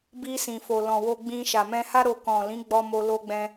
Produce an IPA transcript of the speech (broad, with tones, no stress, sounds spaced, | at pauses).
b i˧ s ĩ˨ f o˨ l ɔ̃˨ w o˧ ɡ͡b ĩ˧ ʃ a˨ m ɛ̃˧ h a˦ ɾ o˧ k ɔ̃˨ l ĩ˨˦ ɡ͡b ɔ˧ m o˧ l o˦ ɡ͡b ɛ̃˦